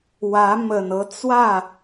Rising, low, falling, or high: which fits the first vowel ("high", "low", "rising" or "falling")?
rising